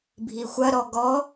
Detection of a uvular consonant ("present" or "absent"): absent